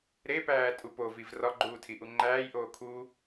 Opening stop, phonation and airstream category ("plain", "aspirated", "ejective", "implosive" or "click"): plain